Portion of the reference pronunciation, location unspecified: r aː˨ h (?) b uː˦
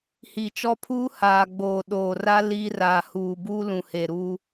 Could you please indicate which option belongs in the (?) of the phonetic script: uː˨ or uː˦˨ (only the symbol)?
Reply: uː˨